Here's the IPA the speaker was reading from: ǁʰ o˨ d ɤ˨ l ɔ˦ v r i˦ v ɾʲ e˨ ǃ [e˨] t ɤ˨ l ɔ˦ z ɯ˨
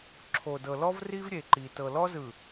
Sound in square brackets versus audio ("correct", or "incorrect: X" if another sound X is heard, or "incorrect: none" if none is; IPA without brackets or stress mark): incorrect: i˨